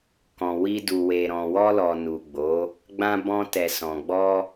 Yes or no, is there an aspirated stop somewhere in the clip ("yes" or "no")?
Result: no